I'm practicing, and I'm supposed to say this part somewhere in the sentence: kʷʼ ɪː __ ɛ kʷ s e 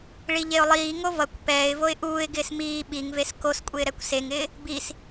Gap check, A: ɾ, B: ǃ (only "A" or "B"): A